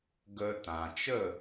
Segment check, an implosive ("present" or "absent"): absent